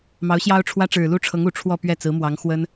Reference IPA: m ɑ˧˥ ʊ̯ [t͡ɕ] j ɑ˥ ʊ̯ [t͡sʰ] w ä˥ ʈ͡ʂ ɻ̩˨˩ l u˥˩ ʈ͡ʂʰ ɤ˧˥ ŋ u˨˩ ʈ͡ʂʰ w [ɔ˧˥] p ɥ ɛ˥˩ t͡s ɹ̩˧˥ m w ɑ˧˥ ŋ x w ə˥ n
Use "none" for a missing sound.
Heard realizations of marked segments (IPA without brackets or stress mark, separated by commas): ɕ, ʈ͡ʂʰ, ɔ˥˧